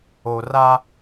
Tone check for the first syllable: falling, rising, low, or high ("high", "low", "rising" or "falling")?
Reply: low